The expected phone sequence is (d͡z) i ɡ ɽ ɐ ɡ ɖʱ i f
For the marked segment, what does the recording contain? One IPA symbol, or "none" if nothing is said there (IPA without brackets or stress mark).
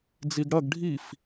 d͡z